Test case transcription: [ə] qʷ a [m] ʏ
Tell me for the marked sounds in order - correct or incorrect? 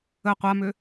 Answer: correct, correct

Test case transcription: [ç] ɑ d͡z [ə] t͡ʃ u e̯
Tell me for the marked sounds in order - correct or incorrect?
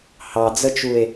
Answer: incorrect, correct

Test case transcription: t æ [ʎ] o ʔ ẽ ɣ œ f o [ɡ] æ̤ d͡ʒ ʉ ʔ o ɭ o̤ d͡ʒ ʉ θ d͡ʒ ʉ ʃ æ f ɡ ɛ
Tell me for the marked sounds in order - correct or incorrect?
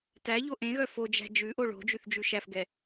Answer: correct, incorrect

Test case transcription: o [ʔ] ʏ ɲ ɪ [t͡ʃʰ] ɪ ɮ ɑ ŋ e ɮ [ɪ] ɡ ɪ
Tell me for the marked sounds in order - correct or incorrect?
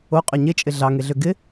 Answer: incorrect, incorrect, incorrect

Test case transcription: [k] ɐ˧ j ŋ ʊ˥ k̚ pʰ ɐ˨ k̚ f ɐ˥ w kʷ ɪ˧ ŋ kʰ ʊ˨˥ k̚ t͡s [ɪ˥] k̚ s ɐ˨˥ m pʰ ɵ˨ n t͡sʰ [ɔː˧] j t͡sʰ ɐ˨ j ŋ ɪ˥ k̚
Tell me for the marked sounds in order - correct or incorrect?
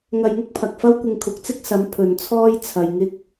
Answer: incorrect, correct, incorrect

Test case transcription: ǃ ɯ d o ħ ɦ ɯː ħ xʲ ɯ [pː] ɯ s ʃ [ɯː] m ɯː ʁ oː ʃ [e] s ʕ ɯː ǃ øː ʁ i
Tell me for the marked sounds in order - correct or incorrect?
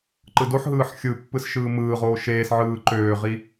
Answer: correct, correct, incorrect

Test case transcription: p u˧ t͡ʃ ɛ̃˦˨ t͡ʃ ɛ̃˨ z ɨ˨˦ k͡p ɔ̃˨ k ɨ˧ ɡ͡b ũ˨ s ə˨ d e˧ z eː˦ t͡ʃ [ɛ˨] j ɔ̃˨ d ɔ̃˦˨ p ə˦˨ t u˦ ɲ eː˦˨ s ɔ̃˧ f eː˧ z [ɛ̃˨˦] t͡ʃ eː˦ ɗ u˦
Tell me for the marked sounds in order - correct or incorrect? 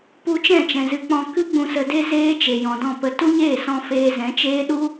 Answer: incorrect, correct

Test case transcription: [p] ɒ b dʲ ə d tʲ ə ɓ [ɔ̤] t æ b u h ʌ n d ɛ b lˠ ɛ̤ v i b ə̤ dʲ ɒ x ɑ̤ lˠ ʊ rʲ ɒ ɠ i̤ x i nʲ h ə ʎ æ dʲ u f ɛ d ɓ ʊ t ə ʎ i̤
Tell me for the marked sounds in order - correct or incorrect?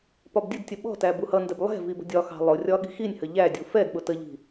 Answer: correct, correct

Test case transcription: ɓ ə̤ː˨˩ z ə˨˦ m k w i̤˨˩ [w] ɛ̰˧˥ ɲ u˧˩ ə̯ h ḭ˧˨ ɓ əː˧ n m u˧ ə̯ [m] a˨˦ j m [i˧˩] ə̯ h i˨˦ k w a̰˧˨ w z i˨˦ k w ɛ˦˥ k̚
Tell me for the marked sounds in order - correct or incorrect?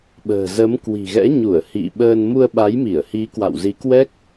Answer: incorrect, incorrect, correct

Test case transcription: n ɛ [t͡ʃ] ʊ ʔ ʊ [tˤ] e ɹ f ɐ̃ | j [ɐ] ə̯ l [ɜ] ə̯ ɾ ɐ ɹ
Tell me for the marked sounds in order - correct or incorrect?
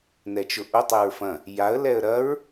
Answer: correct, correct, incorrect, incorrect

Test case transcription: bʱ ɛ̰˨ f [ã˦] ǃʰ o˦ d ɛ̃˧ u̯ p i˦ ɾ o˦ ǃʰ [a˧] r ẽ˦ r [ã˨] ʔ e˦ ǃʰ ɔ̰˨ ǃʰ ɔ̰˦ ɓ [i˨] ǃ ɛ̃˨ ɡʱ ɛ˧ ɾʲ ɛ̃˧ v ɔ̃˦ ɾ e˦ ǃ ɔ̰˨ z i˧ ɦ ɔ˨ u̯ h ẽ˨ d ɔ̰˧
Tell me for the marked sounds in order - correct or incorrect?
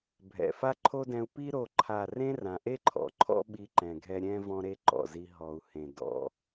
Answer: incorrect, incorrect, correct, incorrect

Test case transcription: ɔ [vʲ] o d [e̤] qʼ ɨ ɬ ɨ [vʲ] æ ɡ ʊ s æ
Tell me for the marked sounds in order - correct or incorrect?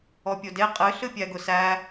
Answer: incorrect, incorrect, incorrect

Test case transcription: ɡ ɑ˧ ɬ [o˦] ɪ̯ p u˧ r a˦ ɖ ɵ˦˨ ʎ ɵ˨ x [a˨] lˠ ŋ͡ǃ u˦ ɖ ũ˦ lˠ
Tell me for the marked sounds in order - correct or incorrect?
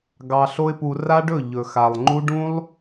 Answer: correct, correct

